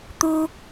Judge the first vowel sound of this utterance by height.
high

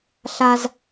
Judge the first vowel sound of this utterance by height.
low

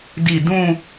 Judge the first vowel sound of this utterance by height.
high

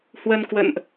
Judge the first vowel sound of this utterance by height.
mid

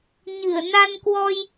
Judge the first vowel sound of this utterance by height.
high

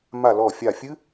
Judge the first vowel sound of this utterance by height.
low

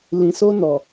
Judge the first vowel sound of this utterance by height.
high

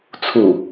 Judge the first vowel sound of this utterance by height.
high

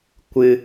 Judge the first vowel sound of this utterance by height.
high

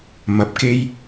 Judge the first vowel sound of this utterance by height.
low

